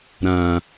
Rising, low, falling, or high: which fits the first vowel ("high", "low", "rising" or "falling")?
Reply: low